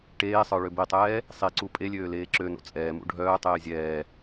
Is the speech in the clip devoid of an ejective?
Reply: no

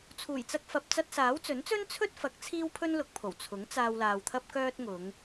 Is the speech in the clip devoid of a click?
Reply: yes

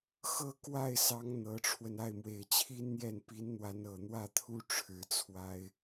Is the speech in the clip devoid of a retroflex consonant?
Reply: no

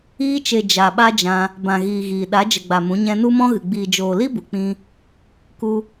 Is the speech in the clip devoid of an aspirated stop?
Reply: yes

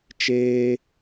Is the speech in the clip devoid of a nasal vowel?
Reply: yes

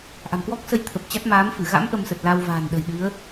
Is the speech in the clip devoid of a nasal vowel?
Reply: yes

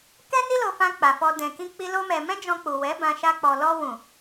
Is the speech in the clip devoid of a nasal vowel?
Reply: no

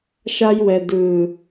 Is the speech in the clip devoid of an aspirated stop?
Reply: yes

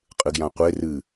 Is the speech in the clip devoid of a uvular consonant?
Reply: no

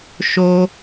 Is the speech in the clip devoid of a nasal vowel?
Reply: yes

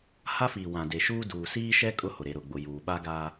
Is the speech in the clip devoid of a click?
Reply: yes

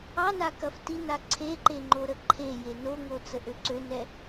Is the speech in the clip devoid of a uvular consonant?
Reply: yes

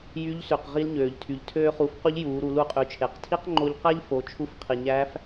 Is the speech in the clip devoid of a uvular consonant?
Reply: no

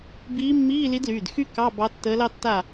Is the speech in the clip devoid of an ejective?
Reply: yes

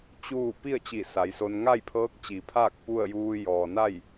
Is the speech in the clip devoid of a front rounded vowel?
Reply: yes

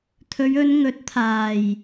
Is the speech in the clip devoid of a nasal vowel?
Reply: yes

